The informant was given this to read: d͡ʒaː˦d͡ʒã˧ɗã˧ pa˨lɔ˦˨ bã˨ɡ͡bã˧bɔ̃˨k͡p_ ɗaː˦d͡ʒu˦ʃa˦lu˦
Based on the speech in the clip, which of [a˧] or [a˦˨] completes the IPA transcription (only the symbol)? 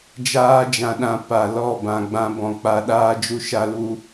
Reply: a˧